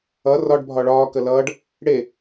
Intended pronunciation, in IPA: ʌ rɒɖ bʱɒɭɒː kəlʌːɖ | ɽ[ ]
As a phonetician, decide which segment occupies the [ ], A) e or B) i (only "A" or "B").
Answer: A